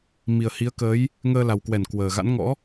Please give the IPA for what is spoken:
m i˨˩ ə̯ h i˨˦ ə̯ k əː˨˦ j | ŋ əː˧ l a˨˩ w k w ɛ˧˩ n k w əː˨˩ ɣ a̰˧˥ n ŋ ɔ̰˧˥

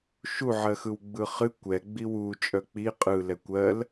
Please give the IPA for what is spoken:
ʃ u ʕ ɜ x ɯ w ɡ͡b ɯ χ ɨ kʷ ɛ ɡ͡b i w u t͡ʃʼ œ k͡p i qʼ ɯ l ɛ kʷ ɜ l

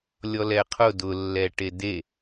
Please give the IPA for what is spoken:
lʲ ɔ l ɛ qʰ ʊ d ʊ lː ɛ ʈ e d e

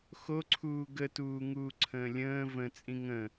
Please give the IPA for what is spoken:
x o ǀʰ uː ɡ ə t uː ŋ uː ǀʰ ə̃ː lʲ ə̃ː v ə̃ t͡sʼ ĩ ŋ ə̃

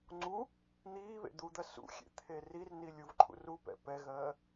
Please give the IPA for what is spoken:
ŋ͡ǀ u | n̪ iː β ḛ d̪ u d̪ ɜ s ṵ xʲ ḛ t̪ʰ e r i r n i lʲ u v ǃʰ ṵ r u p ɛ̰ p ɛ ɣ ɜː

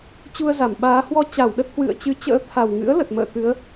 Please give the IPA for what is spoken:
t͡ɕ u˧ ə̯ z a˧˩ m ɓ aː˨˦ h w ɔ˧ t͡ɕ a˧˩ w ɗ ə˦˥ t̚ h w ɨ̰˧˨ ə̯ t͡ɕ ɨ˨˦ t͡ɕ ə̰ː˧˥ t̪ʰ a˨˩ w ŋ ɨ̰˧˥ ə̯ l ə˨˩ t̚ m ə̰ː˧˨ t̪ ɨ˨˦ ə̯

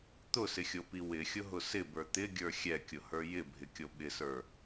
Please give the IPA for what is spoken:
t̪ ʊ s ɪ xʲ o p i w ɪ xʲ ʊ ɦ ʊ s ɪ b ə˞ t̪ ɪ ɡʲ ə˞ xʲ ɛ kʲ ʊ h ə˞ j ɪ bʱ ɪ kʲ o ɓ ɪ s ə˞

